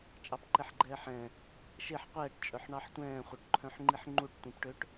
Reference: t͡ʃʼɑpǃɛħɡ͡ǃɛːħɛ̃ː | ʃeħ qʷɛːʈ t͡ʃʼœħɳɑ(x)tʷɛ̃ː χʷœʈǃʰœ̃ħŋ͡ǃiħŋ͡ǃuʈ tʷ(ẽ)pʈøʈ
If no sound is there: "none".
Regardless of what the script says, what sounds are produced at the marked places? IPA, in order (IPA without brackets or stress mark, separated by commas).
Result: ħ, ĩ